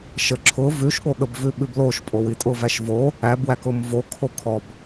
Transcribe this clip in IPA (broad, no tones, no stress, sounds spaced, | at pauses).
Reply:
ʃ ə ǁʰ ʊ v ʉ ʃ ɠ o ɠ ə b v ʉ ɓ ʉ b l o ʃ pʼ o w i tʼ ʊ v æ ʃ v o | æ b w æ k ʊ m v o kʰ o kʰ ɔ b